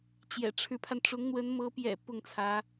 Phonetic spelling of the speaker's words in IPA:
t͡ɕ j ɛ̰˨˩ ʈ͡ʂʰ ɻ̩˧˥ pʰ a˧ n ʈ͡ʂ ʊ˧˥ ŋ n̪ w ə˧˥ n m ɤ˧˥ p j ɛ̰˨˩ p ʊ˥˩ ŋ t͡sʰ ä˧˥

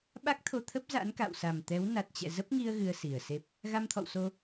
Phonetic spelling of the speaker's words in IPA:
ɓ a˦˥ k̚ t̪ʰ o˧ t̪ʰ ə˦˥ p̚ z a̰˧˥ n k a̰˧˨ w s a˨˩ m t̪ ɛ˨˦ w n a˨˩ t̚ t͡ɕ ɛ̰˧˨ z ə˦˥ p̚ ŋ i˧ ə̯ ɣ ɨ˧ ə̯ s i˨˩ ə̯ s e˦˥ p̚ | ɣ a˧ m t̪ʰ ɔ̰˧˨ w s o˧

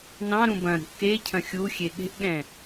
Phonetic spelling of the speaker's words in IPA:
n ɑ̃ ɾ ũ b ɐ̃ ɾ ṳ ʔ k e cʰ ɐ̃ xʲ u xʲ e ɠ e̤ ʔ ɠ ɛ̃

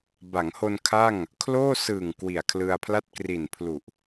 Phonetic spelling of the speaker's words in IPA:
b a˩˦ ŋ h o˧ n kʰ a˥˩ ŋ | kʰ l oː˥˩ s ɯː˨˩ ŋ k w i˨˩ a̯ kʰ l ɯ˧ a̯ pʰ l a˥˩ t̚ k r i˨˩ n pʰ l u˨˩ ʔ

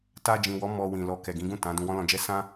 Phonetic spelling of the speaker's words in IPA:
t a˧ d͡ʒ ĩ˨ w ɔ˨˦ m ɔ˧ w ĩ˨ l ɔ˧ k ɛ˨ ɡ ĩ˨˦ ɡ ũ˦˨ t ã˨˦ d ũ˧ w ɔ̃˦ l ɔ̃˧ d͡ʒ ɛ˦ s ã˦

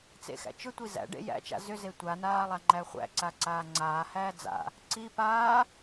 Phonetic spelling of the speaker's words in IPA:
t͡s ḛ x æ̰ t͡ʃ ʏ tʷ i z æ̰ ɖ ḛ j æ̰ t͡ʃ a̰ z ʏ z e tʷ a n aː lˠ a ŋ͡ǃ æ χʷ æ̰ ǀ a ǀ aː ŋ͡ǀ aː h æː d͡z a̰ | ǀ i p aː

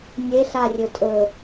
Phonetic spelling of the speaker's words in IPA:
nʲ e ɬ a rʲ ɵ tʼ ɵ

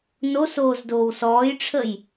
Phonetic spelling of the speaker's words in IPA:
n o s oː z d oː w s ɔː j ʈ͡ʂʰ ə j

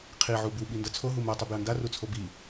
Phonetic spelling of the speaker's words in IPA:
qʰ i ʕ u b u ɓ i n d ʌ t͡sʰ o ɦ u m ɛ tˤ ɯ b j ʌ n d a r u t͡sʰ o b i

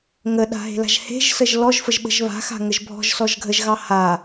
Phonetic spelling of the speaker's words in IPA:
ŋ ə ɗ a̤ ɦ e̤ l a̤ ʒ h e̤ ʒ s ə ʒ l ɔ ʒ f ə ʒ ɓ ə̤ ʒ β a̤ x a̤ ŋ ə ʒ bʱ ɔ̤ ʒ s ɔ ʒ ɡʱ ə ʒ ɣ ɑ h a

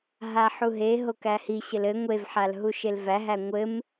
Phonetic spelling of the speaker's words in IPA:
ɦ a ħ u ɦ e ɦ o k æ h i ɕ ɘ l ɘ ŋʷ e v ħ a l ɦ u ʃ e l v æ ɦ æ ŋʷ ɘ m

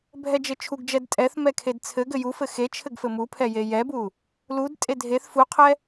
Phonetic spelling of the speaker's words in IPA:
bʱ ɛ d͡ʒ ɘ t͡ʃʰ u ɡ d͡ʒ ɛ d tʼ ɛ θ m ɛ kʰ e d t͡sʰ ɘ ɡ ɘ j u f ɘ x e t͡ʃʰ ɘ ɡ f ɘ m u pʰ ɛ j e j ɛ b u | l u d tʼ e dʱ e θ f u qʰ ɛ

